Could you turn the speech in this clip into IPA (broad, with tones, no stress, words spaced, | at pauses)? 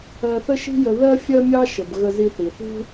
ɜ˧θə˥ʃi̤˥jə˧ ðɜ˥fʲɜ˥mʲɑ˥ʃə˩b ɣə˧zi˧θi˩θṳ˥